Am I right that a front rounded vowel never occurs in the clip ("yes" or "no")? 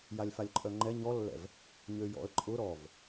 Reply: no